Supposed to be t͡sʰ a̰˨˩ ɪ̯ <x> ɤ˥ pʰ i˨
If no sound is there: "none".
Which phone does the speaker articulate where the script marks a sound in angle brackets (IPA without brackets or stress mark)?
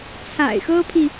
x